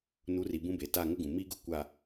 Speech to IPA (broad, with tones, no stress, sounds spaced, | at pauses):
n u˨˦ r i˨ b ũ˦ b e˨ t a˦˨ ŋ ʊ˦ ɡ ũ˨ m i˦ ɡ ʊ˦ kʷ a˨